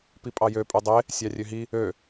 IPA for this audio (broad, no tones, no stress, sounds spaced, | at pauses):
p i pʼ ɑ j ø pʼ y dˤ e | sʲ ɑ rʲ ø ɦ i | ø